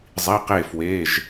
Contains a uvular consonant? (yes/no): yes